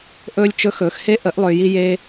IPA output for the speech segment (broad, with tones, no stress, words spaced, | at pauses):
ʔɵː˦lʲt͡ʃɵ˦ xɵː˨xhe˦ ʔə˨˦ʔlˠʏː˨ji˧je˧